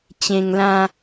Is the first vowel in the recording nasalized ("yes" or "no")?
yes